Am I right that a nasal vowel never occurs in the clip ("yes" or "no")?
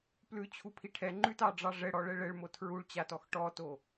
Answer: yes